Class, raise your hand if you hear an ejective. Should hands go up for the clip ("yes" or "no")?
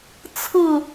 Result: no